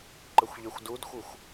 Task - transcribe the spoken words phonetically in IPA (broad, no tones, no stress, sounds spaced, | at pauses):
ǃ ə xʷ ʎ e xʷ d u d xʷ ɯ xʷ